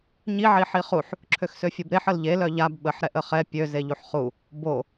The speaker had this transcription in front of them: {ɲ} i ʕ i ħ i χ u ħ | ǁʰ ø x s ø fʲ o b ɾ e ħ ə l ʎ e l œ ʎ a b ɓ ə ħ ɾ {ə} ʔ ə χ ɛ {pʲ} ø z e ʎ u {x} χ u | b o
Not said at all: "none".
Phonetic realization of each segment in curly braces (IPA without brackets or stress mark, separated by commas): ɲ, ɛ, pʲ, ħ